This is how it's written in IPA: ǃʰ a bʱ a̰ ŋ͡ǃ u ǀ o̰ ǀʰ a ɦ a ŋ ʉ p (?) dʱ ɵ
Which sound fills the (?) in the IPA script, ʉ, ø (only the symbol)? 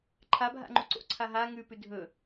ʉ